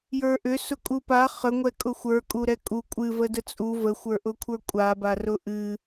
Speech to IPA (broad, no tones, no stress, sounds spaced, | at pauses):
j ə˞ ʔ ʏ s ʊ kʼ u p a χ ə ŋʷ ɛ kʼ ʊ xʷ ə˞ kʼ u ɾ ɛ kʼ u kʷʼ ɨ v ə d ə t͡sʼ u v ə xʷ ə˞ ʔ ʊ kʷʰ ə˞ kʷʼ a b a r ʊ ʔ ɨ